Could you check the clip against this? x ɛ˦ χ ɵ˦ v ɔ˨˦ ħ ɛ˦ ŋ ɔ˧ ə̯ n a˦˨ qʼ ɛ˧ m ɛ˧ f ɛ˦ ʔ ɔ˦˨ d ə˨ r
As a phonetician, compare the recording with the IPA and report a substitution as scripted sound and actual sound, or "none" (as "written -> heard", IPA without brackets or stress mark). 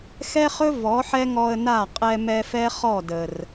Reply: ʔ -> χ